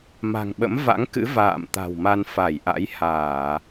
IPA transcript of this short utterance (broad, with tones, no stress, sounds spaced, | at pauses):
m a̤˨˩ ŋ ɓ ə̰˧˥ m v a̰˧˥ ŋ k ɨ̰˧˥ v a̰ː˧˨ m t̪ a̤˨˩ w m a˧ n f a˧˩ j ʔ a̰˧˥ j h aː˧˩˨